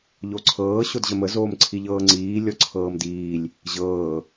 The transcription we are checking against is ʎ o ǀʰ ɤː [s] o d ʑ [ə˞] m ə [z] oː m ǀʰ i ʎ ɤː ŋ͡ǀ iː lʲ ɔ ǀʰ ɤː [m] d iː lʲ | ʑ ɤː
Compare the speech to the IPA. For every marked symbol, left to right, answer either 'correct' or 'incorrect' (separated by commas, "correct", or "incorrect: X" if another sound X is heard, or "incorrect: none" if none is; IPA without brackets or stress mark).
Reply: incorrect: ɕ, incorrect: ə, correct, correct